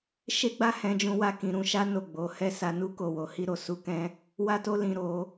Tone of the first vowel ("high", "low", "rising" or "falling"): high